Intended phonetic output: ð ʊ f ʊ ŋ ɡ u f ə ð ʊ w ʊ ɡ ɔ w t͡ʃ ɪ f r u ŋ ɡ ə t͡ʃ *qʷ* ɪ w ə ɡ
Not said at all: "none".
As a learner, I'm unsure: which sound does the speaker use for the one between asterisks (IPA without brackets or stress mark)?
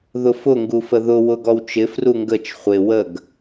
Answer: χʷ